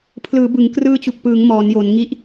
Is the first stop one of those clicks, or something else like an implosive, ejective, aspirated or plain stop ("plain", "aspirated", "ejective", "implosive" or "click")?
aspirated